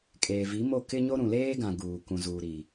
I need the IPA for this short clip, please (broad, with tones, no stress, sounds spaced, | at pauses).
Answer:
kʼ eː˨ v i˨˦ m o˦˨ k ɪ˦ ɲ o˦ ɾ ũ˨ l eː˦ ɡ ã˨ ɡ uː˨ k ũ˨ z uː˨ ɾ i˨